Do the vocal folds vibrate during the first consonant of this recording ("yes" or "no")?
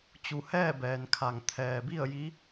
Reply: no